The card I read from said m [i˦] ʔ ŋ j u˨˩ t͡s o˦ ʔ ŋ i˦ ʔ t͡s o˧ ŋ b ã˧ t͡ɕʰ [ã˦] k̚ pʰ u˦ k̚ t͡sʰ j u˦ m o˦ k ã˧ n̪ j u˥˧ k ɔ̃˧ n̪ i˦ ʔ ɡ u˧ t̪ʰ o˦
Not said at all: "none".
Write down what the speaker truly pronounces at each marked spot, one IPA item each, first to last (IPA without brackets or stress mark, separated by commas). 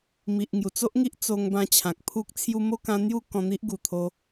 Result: i˨, ã˨